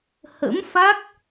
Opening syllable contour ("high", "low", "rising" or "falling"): rising